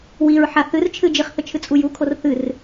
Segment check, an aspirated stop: present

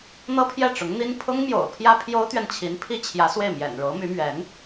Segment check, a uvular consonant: absent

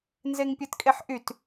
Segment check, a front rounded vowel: present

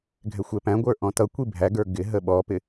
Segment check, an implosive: present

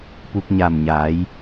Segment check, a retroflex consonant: absent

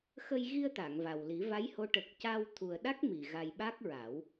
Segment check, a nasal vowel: absent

